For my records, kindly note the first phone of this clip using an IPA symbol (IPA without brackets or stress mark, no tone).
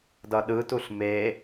d